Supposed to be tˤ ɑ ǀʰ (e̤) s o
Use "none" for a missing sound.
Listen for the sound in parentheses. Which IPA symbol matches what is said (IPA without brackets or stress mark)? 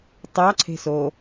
e̤